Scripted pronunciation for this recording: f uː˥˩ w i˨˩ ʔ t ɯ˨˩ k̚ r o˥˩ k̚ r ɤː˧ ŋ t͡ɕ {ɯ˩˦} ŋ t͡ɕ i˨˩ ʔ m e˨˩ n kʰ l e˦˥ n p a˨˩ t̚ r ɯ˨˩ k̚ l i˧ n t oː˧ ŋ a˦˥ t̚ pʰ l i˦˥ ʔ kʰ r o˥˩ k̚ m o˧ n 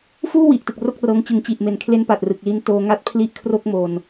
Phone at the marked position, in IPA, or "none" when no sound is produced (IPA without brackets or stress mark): ɯ˩˦